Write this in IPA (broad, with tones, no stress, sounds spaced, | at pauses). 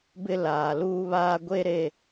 b ɪ˦ l aː˨ l uː˦ β aː˦ ɡʷ e˦ ɾ e˦˨